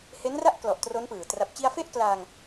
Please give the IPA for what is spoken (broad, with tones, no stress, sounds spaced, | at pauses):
h e˦˥ n r a˥˩ ʔ k l ɔ˨˩ ʔ t r o˦˥ n p ɯː˨˩ t r a˨˩ p̚ t͡ɕ i˧ a̯ f e˥˩ ʔ k l aː˧ ŋ